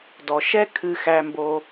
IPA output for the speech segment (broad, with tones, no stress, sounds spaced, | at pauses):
d ɔ˩ ʃ ɛ˥ kʰ ɨ˧ x æ˧ m b o˧